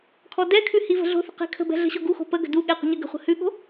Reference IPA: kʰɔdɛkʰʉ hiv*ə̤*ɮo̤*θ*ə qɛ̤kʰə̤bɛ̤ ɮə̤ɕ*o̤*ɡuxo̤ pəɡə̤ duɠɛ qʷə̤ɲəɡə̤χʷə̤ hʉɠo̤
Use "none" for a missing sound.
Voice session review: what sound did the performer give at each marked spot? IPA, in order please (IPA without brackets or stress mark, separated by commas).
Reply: ə̤, θ, o